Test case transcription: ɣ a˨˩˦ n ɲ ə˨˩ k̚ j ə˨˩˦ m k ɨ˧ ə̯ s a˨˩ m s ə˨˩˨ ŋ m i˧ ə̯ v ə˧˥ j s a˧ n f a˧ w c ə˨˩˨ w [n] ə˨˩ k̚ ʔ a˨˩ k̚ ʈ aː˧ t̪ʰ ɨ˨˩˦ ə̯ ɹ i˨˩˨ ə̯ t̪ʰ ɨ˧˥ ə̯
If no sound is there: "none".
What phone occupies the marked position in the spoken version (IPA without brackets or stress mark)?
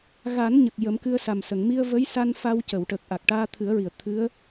ʈ